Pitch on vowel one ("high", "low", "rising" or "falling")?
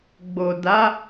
low